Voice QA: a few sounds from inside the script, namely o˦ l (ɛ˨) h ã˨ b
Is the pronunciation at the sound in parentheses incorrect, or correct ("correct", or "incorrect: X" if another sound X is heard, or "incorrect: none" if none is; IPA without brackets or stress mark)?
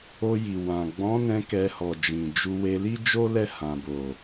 incorrect: ɛ˦˨